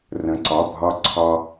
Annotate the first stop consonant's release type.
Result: click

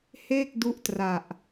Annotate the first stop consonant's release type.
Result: plain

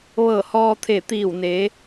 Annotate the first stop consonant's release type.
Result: aspirated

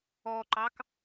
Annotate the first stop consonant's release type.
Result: click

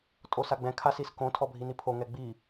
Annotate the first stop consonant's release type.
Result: ejective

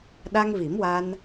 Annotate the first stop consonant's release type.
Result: implosive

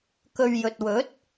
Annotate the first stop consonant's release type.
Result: plain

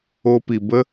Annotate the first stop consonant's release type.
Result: plain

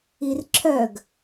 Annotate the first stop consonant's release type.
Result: click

